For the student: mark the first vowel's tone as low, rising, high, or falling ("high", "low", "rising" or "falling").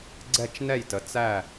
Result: falling